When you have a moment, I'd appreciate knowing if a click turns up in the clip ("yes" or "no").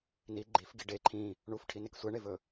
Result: yes